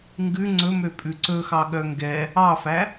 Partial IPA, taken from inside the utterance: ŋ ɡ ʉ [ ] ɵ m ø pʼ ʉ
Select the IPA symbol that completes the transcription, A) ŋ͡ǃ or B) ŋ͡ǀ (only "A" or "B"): B